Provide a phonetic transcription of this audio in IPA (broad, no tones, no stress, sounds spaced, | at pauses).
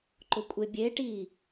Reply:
ǃ ʊ kʷʼ e bʲ e ʈ iː